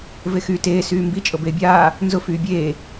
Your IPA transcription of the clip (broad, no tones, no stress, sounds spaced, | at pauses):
v e x yː t eː s yː m b i t͡ʃʼ ɤ b eː bʲ aː | n z ʊ f yː bʲ eː